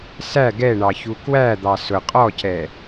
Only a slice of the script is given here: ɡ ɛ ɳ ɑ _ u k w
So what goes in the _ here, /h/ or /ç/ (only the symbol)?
ç